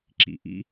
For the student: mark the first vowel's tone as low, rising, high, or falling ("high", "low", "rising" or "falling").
low